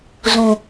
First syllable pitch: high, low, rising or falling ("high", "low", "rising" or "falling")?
low